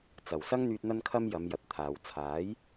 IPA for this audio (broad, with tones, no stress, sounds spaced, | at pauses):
t͡s ɐ˨˩ w s ɐ˥ ŋ n̪ yː˧ t̚ n̪ ɐ˧ n kʰ ɐ˧ m j ɐ˨˧ m j ɐ˨ t̚ t̪ʰ aː˨ w t͡sʰ aː˨˥ j